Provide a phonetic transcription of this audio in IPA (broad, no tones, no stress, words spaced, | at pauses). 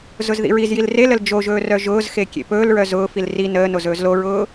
zʊzðḭɹizjil reləl d͡ʒoʒɵː rœʒʊːzxe kʲḛpɵːlɹœ zʊːfil ri nəːnoz ɵːzloɹʊː